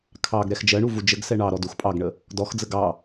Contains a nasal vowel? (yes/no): no